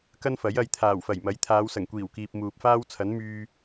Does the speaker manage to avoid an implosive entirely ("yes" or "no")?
yes